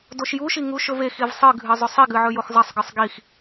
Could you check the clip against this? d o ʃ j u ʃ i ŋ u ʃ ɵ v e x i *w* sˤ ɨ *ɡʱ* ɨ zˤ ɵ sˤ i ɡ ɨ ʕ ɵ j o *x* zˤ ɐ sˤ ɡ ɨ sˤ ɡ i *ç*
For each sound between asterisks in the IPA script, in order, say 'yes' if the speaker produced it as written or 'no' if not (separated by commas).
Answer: no, yes, yes, no